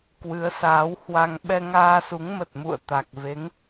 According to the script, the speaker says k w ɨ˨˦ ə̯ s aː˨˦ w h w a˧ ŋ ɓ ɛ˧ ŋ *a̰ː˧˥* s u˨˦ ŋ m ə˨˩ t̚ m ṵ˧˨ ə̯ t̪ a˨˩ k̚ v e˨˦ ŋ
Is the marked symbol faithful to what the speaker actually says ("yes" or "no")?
no